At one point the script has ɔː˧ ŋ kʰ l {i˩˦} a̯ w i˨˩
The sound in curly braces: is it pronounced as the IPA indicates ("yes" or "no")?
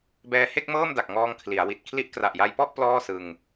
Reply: yes